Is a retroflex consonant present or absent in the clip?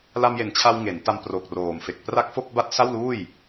absent